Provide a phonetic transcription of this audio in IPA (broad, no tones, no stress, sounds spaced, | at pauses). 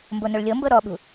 m b o n o ɭ lʲ ɤ m b ɤ ɾ ɔ ɓ ṳ